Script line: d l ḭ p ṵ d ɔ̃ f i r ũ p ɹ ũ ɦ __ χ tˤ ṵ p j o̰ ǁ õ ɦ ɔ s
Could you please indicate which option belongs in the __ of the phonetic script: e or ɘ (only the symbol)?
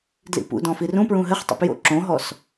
ɘ